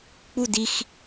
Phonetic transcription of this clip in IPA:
k͡pu dix

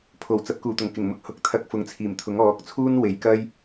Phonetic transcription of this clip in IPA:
pʰo˨˩wt͡sɐ˨˥p̚ kuː˨˩t̪ʊ˨˩ŋkɪ˨˩ŋmʊ˧k̚ hʊ˨˥k̚t̪ʰɐ˧k̚fʊ˨˥ŋt͡sʰiː˨˩m t̪ʰʊ˨˥ŋɔː˨˥k̚t͡sʰuː˥n we˨˧jkɐ˥j

